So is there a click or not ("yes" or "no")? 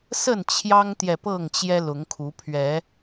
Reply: no